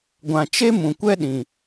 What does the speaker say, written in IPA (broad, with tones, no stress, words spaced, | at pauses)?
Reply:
ɡʷã˨ t͡ʃe˦mũ˨kʷɛ˦ ɗĩ˨